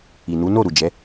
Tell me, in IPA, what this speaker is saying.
i˨ n u˨˦ n o˦˨ ɾ u˨ d͡ʒ ɛ˨˦

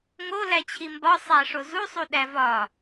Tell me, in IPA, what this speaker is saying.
ŋ o l æ t͡ɕʰ i m b ɒ sˤ æ ʂ o z u sˤ u ɗ æ v ɒ

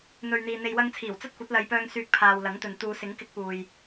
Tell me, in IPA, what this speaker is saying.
n̪ ɵ˨ ɥ n̪ iː˨ n̪ e˨ j w ɐ˧ ŋ t͡sʰ iː˨˩ w t͡s ɐ˥ t̚ kʷ ɐ˨˥ t̚ l ɐ˨˧ j p œː˧ ŋ s yː˧ k̚ pʰ aː˨ w l ɐ˨˥ ŋ t̪ ɵ˨ n t̪ uː˨˧ s ɪ˨˥ ŋ k ɪ˧ k̚ p uː˨ j

